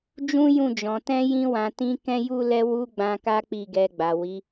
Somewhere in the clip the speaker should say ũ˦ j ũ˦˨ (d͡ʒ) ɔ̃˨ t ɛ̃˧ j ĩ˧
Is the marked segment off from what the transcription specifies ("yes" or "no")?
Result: no